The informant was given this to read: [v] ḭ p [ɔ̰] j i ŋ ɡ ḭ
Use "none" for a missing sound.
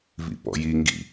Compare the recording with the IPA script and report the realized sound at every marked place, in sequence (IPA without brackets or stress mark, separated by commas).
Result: v, ɔ̰